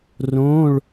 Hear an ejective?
no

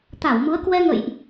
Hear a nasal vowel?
no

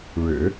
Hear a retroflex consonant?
yes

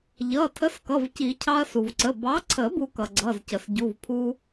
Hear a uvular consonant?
no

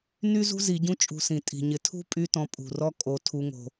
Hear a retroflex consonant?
no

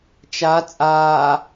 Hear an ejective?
yes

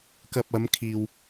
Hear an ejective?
no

